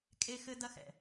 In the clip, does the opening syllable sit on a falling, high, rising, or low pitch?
high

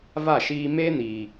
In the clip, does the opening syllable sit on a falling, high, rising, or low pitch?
falling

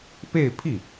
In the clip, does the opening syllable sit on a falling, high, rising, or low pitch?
falling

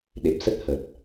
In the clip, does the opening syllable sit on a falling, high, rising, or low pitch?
low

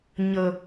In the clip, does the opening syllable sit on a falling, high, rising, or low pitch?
low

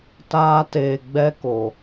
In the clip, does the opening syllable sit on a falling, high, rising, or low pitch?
high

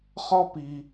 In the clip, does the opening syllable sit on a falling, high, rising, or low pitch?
high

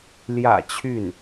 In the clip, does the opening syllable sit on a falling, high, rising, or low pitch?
low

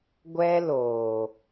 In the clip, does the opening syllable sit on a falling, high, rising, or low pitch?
high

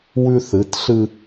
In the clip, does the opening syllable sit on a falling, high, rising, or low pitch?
high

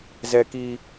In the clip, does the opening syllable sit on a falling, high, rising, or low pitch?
high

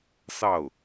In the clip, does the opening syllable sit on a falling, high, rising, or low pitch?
falling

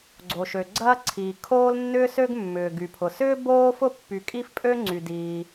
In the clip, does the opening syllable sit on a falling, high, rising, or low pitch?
low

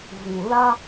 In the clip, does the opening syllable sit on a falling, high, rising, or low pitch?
low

